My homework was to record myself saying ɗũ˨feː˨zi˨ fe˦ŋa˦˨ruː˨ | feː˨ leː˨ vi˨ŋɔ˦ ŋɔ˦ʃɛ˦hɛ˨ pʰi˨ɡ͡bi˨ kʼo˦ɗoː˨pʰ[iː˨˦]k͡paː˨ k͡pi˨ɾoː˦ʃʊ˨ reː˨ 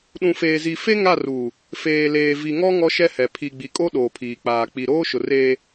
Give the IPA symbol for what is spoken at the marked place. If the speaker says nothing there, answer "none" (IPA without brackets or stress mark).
iː˨